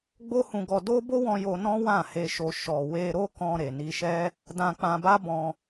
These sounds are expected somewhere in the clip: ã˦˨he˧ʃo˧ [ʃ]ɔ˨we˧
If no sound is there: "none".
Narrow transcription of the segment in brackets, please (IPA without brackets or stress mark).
ʃ